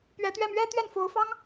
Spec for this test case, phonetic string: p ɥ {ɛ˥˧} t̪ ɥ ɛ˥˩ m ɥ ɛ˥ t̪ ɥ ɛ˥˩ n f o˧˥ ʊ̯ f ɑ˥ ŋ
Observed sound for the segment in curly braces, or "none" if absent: ɛ˧˥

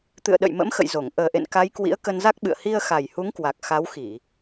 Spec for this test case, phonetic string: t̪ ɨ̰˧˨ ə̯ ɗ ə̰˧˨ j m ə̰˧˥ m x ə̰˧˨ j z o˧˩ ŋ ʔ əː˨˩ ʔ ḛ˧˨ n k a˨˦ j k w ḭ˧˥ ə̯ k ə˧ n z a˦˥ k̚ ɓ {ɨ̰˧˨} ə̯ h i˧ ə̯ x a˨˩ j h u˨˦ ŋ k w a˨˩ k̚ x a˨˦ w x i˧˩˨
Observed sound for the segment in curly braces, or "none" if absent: ɨ̰˧˨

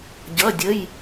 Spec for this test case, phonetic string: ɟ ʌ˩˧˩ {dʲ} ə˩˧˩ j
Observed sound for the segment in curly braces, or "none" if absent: dʲ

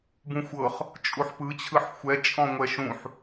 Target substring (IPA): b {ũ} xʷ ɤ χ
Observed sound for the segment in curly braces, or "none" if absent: ũ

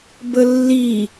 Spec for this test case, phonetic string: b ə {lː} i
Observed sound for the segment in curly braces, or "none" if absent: lː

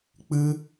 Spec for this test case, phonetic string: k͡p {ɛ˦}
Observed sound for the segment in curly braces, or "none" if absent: ɨ˦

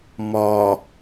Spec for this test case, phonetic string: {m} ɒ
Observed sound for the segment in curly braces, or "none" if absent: m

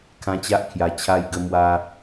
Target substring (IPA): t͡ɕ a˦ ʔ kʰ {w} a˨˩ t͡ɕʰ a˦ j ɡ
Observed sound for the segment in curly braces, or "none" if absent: j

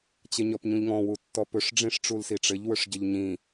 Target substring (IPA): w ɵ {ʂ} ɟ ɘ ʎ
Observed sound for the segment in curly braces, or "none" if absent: ʂ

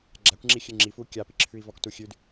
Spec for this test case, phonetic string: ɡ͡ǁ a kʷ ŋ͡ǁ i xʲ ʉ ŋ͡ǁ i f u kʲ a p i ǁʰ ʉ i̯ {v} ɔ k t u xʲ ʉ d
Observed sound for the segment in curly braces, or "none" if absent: v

